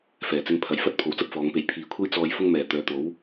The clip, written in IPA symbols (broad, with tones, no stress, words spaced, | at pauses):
fɛː˨˩t͡sɪ˧ŋ pʰɐ˨jfɐ˥t̚ pʰo˨wt͡sɐ˥p̚ fɔː˨˧ŋpe˧j pʰiː˨kʷʰe˥j t͡sɔː˧j fʊ˥ŋmɛː˨˩ t̪œː˨˧t̪o˨˥w